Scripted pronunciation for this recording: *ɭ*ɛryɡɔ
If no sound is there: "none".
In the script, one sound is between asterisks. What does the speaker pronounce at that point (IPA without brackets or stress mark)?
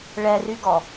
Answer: ɭ